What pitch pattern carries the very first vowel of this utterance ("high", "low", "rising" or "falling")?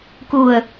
low